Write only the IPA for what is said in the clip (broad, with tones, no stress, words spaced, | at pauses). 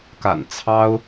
ka̰˨˩n t͡sʰɑ˥ʊ̯